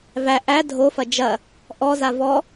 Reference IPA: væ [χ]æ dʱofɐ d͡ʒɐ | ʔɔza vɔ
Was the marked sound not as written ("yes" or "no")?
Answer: yes